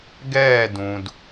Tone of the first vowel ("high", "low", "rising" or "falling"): falling